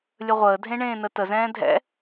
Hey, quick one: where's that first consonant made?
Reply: tongue tip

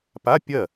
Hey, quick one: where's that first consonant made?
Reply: lips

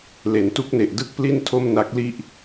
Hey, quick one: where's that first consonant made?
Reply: tongue tip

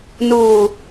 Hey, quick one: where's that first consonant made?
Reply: tongue tip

